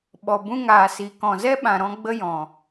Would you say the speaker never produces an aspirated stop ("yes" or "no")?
yes